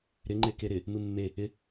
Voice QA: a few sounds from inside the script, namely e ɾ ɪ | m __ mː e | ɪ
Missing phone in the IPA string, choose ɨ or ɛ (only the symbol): ɨ